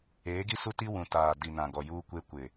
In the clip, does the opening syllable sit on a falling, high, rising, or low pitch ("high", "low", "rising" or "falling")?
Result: rising